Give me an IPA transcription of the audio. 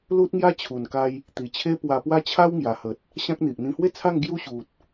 l u˦ t̚ ŋ j a˦ t͡ɕʰ u˨˩ n k a˧ j | t̪ i˨˩ t͡ɕʰ e˦ p w a˧ p w a˦ t͡ɕʰ a˦ w ŋ j a˨˩ h ə˨ t̚ | ɕ ã˦ k̚ n̪ i˨ ʔ n̪ ĩ˧ h w e˥˧ t͡sʰ a˥˧ ŋ ɡ j u˦ ɕ u˨ t̚

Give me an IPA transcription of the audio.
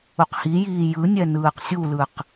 u q h i j iː j ɯ nʲ ɛ n ɯː q sʲ u l ɯ q

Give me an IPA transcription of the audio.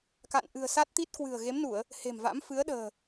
k a̰˧˨ n ʔ ɨ̤˨˩ ə̯ s a˦˥ t̚ t̪ i˦˥ t̚ k w ɨ̤˨˩ ə̯ ɣ e˨˦ m n u˧˩˨ ə̯ | h e̤˨˩ m v a̰˧˥ m f ɨ˨˦ ə̯ ɗ ə̤ː˨˩

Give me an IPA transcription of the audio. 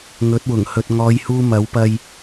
ŋ ɵ˨˥ t̚ w ʊ˨˩ ŋ h ɵ˨ t̚ ŋ ɔː˨˧ j h uː˧ m ɐ˨˥ w p ɐ˧ j

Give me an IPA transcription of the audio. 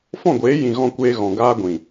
f ɔ̃˦˨ ɡʷ eː˨˦ j ĩ˨ ɣ ɔ̃˧ kʷ eː˧ ɣ ɔ̃˨ ɡ aː˧ ɡʷ ĩ˨

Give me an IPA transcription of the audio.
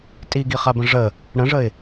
tʼ i ɡ i χ a b ə̃ ʐ ə | ɽ ə̃ ʐ ə ɪ̯

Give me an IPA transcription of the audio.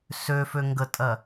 s ø f ø ŋ ɡ ə tʼ ɜ

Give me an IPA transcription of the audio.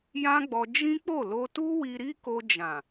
j ã˦ ɡ͡b ɔ˧ d͡ʒ ĩ˦ k͡p o˦˨ l o˧ t u˦ w i˧ ɾ i˦ k o˧ d͡ʒ ã˨

